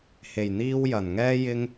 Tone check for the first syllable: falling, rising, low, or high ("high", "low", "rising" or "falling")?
low